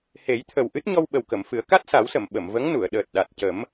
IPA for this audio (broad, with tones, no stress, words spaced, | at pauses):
he˨˩˦jt̪ʰə˨˩w ʔɨ˦˥t̚ɲɔ˧wɓə˨˩wkə˨˩˨m fɨ˨˩˦ə̯ka˦˥t̚sa˨˩˦wsə˨˩˨m ɓə˨˩˨mvə˧˥ŋnu˨˩˨ə̯ ɗəː˨˩t̚ɗa˨˩t̚cə˨˩˦m